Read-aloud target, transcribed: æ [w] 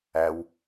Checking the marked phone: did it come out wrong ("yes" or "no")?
no